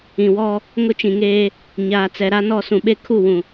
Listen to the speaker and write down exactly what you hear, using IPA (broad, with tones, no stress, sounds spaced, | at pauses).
ĩ˨ w ɔ˦ | ŋ ʊ˦ t͡ʃ ĩ˨ ŋ eː˦ | ɲ aː˨ t͡s ɛ˨ ɾ a˦ n ɔ˦˨ s ũ˨ ɓ e˦ kʰ u˦˨ w ũ˨